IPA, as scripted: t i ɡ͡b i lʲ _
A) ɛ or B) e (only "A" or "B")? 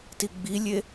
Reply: B